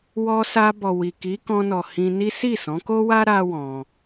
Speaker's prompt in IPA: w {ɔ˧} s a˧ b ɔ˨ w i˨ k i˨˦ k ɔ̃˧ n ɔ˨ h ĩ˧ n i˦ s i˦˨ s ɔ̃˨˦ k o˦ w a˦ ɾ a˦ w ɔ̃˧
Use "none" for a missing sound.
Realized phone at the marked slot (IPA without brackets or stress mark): ɔ˧